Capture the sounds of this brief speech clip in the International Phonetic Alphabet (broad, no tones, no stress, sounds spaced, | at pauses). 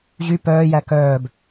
ʑ y p œː j æ k œː b